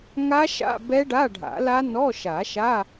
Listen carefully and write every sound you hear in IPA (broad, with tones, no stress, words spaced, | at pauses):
ŋa˦˥ʃa̰˧˥˧ bɛ˦˥ɖa˧˥˧ɖʱa̰˨˩˦la˦˥ nɔ˧˥˧ʃa˨˩˦ʃa˧˥˧